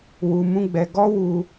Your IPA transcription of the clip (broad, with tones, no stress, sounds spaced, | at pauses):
w u˧ m ũ˦ ɡ͡b ɛ˧ ɡ ɔ˦ w u˧